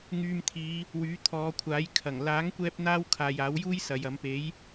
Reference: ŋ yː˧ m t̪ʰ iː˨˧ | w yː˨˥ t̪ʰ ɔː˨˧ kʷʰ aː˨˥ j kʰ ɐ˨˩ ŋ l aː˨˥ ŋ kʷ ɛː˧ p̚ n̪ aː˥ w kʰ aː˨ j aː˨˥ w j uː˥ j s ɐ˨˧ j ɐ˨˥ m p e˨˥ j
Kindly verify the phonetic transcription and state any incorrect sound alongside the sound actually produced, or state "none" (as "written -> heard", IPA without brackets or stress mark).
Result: none